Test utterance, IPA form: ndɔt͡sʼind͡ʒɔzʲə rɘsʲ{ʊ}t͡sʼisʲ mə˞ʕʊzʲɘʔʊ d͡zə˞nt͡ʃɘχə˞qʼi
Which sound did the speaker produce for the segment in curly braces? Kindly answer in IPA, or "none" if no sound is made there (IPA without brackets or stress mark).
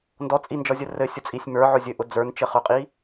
ʊ